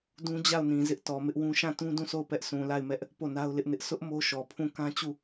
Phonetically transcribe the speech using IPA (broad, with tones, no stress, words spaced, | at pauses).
dũ˦d͡ʑa˦˨ʊ̯nĩ˨ zɪ˦ʔtɔ˨mɪ˦ʔwũ˦ ʃã˦˨tũ˦ dũ˦˨so˦˨ʊ̯ pɛ˦ʔ sʰũ˨la˦˨ɪ̯mɛ˦ʔ | po˦˨na˦ʊ̯ lɪ˦ʔnɪ˦ʔ sʰʊ˦ʔ mo˦ʃɔ˨ pʰũ˦˨ kã˦ t͡ɕu˦˨